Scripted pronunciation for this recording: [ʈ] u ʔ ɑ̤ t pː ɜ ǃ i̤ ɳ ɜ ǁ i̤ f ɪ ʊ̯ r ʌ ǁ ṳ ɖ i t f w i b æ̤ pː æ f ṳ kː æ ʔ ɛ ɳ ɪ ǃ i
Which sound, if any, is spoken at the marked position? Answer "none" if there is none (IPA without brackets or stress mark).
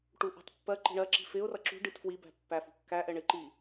ʈ